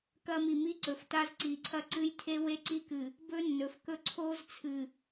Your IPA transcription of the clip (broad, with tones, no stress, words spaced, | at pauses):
kɐ˦mi˨ mi˦ǀɵ˨f ta˦zǀi˨˦ǀʰɐ˦ ǀɨ˦jtʰe˦we˦ ǀi˦kɨ˨ | bɵ˦nːɵ˨fkɵ˦ ǀʰo˦zt͡sʰɨ˨